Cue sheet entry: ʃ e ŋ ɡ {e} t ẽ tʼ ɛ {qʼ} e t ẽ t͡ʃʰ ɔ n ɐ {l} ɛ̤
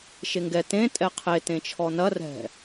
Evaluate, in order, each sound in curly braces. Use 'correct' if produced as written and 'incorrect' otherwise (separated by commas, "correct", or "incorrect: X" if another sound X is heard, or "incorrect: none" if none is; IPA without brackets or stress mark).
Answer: incorrect: ɛ, incorrect: qʰ, incorrect: r